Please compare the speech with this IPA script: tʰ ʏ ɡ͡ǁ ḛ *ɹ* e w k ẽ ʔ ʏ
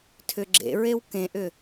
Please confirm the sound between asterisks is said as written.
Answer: yes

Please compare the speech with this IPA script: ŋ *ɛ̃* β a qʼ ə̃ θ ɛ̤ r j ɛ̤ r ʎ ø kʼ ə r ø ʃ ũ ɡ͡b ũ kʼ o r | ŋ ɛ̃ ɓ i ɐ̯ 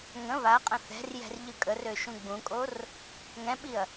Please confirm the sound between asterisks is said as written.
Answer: no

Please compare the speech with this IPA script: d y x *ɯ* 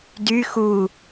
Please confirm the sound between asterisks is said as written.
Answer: no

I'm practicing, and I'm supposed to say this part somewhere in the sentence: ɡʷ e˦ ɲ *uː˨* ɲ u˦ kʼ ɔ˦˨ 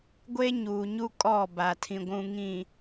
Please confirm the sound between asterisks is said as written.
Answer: yes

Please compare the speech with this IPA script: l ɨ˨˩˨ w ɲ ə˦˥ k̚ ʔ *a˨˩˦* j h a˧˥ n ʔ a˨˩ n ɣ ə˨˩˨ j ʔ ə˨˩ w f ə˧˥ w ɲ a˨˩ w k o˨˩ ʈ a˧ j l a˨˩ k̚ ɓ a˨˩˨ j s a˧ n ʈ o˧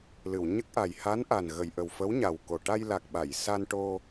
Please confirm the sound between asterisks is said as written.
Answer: no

